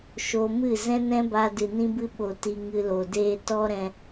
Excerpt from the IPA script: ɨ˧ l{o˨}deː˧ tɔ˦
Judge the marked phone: correct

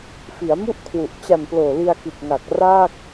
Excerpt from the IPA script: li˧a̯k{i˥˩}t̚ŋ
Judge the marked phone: incorrect: i˨˩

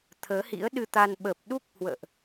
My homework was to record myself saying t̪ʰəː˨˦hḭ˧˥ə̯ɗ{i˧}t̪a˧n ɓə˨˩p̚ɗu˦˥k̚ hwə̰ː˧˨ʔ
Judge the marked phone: incorrect: ɨ˧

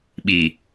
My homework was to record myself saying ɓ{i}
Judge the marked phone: correct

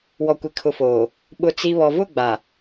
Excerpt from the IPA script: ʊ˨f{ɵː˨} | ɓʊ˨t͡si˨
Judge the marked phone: incorrect: oː˨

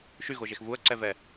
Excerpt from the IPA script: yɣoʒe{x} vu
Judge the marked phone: correct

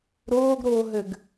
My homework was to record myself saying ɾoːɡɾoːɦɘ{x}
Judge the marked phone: incorrect: ɡ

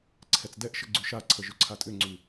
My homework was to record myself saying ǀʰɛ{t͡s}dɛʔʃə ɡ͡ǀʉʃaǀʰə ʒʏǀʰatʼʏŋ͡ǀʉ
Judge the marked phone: correct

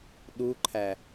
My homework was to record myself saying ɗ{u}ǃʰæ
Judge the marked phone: correct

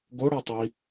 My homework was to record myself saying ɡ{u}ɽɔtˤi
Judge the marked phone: incorrect: o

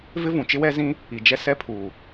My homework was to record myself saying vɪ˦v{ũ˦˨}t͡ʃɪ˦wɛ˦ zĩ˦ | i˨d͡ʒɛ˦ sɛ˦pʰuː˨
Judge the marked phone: incorrect: ũ˨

